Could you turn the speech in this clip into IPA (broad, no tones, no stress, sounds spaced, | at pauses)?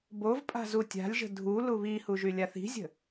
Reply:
b o v pʼ a̤ z u tʲ a̤ lʲ ʒ ə̤ dʱ u l u β i h u ʒ y lʲ a θ i̤ zʲ ə̤